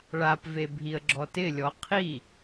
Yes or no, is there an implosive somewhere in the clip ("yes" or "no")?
no